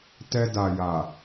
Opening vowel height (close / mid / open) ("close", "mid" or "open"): mid